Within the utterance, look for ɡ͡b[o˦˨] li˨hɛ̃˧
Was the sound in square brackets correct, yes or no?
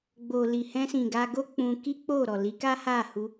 no